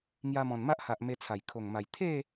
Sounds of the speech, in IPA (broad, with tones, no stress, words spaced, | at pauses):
ŋja˧mɔ̃˨˩nma˦ʔha˨ʔ me˧t͡sʰa˨˩j kʰo˨˩ŋma˨˩j t̪ʰe˥˧